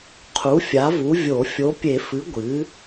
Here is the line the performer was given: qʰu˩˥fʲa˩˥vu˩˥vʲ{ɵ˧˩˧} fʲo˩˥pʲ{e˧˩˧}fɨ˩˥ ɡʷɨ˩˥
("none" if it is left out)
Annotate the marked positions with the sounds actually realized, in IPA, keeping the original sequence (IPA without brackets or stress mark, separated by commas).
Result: o˧˩˧, e˧˩˧